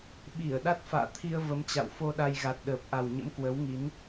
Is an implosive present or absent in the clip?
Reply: present